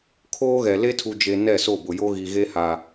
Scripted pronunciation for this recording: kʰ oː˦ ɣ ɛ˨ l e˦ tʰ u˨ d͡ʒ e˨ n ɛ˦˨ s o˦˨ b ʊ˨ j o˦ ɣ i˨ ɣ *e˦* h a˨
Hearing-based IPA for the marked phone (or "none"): e˦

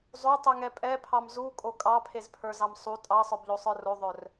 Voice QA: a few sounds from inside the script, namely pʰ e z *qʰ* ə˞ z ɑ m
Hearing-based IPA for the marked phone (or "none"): pʰ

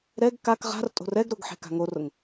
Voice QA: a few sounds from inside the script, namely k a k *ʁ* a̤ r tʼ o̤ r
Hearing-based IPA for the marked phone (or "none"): ʁ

